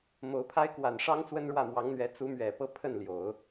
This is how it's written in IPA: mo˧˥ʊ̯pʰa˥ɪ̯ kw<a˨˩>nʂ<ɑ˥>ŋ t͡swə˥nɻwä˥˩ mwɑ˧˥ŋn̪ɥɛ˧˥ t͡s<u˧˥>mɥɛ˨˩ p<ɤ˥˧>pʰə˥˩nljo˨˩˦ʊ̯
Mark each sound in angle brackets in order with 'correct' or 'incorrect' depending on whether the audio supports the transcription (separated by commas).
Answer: correct, correct, correct, correct